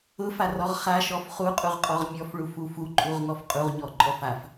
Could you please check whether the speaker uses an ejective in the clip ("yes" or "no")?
yes